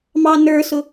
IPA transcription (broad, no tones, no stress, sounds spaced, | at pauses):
m ɑ n ə˞ s ʊ